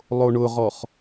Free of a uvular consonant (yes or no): no